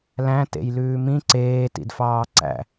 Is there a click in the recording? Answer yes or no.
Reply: yes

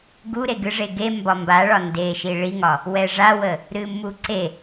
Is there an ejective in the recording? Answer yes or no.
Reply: no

